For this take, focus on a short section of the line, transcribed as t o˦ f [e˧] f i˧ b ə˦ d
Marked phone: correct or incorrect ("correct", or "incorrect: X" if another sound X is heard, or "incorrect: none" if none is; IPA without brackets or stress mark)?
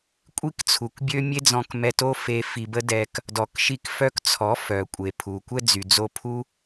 correct